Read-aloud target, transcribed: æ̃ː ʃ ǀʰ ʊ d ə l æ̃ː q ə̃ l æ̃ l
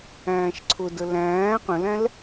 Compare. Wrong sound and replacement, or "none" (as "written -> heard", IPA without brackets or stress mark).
none